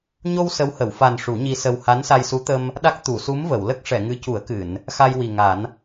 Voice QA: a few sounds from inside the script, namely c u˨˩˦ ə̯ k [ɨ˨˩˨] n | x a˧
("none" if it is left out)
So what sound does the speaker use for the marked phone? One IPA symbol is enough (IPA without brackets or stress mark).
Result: ɨ˨˩˨